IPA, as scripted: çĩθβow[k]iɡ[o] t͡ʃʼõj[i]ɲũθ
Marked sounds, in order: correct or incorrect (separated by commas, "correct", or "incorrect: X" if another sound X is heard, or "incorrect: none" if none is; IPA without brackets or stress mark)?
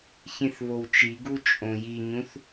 incorrect: t͡ʃ, incorrect: u, correct